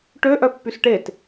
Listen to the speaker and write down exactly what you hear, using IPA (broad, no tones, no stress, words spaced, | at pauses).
ʈø ʔœpːysʈet